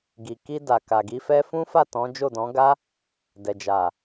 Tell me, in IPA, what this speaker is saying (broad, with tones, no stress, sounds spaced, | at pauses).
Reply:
ɡ i˨ k i˧ d a˨ k a˨ ɡ i˧ f ɛ˦ f ũ˦ f a˦˨ t ɔ̃˨˦ d͡ʒ o˦˨ d ɔ̃˨˦ ɡ a˦ | d ɛ˨ d͡ʒ a˨